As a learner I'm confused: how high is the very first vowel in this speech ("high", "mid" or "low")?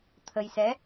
mid